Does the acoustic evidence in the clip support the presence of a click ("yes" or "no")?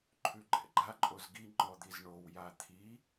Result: yes